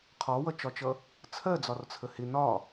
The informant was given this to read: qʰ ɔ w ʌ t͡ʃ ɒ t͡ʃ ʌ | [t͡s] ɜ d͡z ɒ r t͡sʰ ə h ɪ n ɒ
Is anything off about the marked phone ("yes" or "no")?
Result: yes